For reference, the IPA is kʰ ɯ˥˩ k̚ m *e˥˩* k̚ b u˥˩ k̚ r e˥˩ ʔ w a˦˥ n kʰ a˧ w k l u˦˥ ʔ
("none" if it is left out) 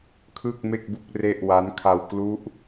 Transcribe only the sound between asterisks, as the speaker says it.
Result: e˥˩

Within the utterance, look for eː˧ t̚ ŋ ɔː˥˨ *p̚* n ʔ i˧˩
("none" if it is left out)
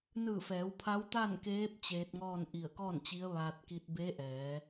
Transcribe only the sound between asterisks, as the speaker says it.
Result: none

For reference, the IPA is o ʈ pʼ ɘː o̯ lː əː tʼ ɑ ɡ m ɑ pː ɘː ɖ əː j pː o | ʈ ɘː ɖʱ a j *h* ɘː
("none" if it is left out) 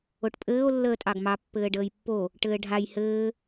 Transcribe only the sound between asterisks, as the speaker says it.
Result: h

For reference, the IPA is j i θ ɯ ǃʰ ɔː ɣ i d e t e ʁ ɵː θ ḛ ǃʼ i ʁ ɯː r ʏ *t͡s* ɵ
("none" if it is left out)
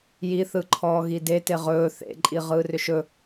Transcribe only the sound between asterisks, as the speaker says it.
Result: ʃ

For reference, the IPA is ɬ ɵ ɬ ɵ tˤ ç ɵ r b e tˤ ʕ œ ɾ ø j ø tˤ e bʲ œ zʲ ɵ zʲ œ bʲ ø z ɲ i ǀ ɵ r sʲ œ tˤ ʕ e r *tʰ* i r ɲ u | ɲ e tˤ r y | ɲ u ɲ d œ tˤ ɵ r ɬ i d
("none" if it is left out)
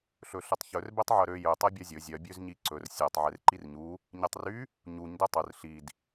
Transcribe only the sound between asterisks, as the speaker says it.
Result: ǃ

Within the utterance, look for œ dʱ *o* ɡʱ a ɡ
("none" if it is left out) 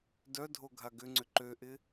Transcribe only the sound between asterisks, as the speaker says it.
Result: o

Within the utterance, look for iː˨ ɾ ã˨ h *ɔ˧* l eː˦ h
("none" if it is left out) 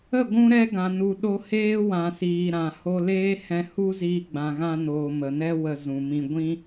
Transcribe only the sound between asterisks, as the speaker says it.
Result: o˧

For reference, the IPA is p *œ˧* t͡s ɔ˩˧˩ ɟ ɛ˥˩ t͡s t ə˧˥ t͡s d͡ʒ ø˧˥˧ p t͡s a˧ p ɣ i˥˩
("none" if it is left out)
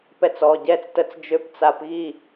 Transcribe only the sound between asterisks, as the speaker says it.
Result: ɛ˧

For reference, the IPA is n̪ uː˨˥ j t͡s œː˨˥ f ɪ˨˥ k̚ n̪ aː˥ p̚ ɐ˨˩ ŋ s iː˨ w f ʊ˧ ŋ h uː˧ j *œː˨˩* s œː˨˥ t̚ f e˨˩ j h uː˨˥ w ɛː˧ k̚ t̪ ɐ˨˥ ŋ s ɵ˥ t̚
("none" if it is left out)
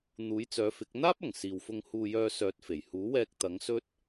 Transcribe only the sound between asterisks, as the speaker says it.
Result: œː˧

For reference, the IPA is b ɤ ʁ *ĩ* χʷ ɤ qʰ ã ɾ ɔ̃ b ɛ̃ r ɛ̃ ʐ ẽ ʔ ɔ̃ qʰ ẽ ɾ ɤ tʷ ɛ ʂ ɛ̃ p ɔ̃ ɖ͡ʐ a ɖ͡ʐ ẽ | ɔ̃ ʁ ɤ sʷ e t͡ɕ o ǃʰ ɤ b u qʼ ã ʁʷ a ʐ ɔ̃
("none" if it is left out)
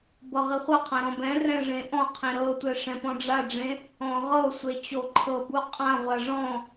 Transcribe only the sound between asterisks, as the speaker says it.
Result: i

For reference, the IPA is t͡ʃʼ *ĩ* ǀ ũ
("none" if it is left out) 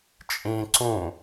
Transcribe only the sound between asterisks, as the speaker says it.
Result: ĩ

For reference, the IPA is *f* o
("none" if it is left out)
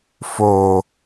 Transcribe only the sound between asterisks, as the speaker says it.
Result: f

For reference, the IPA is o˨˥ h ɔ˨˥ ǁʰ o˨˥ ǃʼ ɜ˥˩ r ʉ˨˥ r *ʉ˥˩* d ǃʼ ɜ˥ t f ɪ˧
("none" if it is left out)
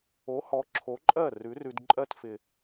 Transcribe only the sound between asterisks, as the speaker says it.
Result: ʉ˧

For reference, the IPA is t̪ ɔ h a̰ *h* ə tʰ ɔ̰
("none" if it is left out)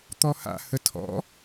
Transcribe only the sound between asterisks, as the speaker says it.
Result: h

